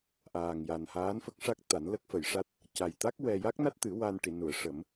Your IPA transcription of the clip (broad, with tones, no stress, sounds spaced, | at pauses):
ʔ aː˨˩ ŋ j a˨˩ n h aː˧˥ n f ə˦˥ k̚ ʂ a˦˥ k̚ t̪ a˨˩˦ n l ə˦˥ k̚ f ə˨˩˨ j ʂ a˦˥ t̚ | c a˨˩ j t̪ a˦˥ k̚ w ɛ˧ j a˦˥ k̚ n a˦˥ t̚ t̪ ɨ˨˩˦ w a˧ n ʈ i˨˩˨ n u˨˩˨ ə̯ ʂ ə˨˩˦ m